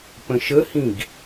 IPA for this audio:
p ə̃ ʃ ə h ĩ ɡ

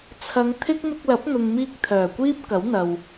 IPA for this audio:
t͡sʰ ɐ˨˧ ŋ t̪ʰ ɪ˥ k̚ m ɪ˧ k̚ l ɐ˨˥ p̚ n̪ ʊ˨ ŋ m iː˧ k̚ t̪ʰ œː˨˩ kʷ iː˥ p̚ k ɐ˨˥ w n̪ ɐ˨ w

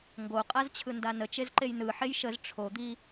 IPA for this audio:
ŋ ɡ o qʼ a z t͡ɕʰ ɯ n d a n ə t͡ʃ e z ǃ e j n ɯ ħ e j ʃ ə z ʈ͡ʂʰ o d̪ i

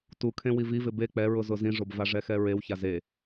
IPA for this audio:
t u kʰ ẽ w i v i v ɪ b e k͡p ɛ ɹ ʊ z ʊ z ĩ ʐ o b v a ʐ ɛ x ɛ ɹ e w ç a z e

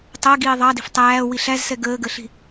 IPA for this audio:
tˤ ɜ ɡ iː ðˤ ɑ d i̤ f tˤ æː w i ɬ æ z s ɛ ɡ əː ɡ ə ɬ i̤

